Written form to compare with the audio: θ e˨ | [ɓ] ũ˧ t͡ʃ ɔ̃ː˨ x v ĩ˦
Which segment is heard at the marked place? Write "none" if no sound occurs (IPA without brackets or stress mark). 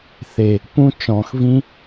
p